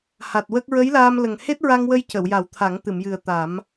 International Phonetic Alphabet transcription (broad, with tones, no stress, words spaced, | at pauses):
ha˨˩t̚wə˦˥k̚ ɹə˧˥jlaː˧m lə˨˩ŋ he˦˥t̚ɹa˧ŋwə˧j cə˨˩˨wja˨˩˦w t̪ʰa˨˩˦ŋt̪ɨ˨˩˨mjɨ˨˩ə̯ t̪a˨˩˦m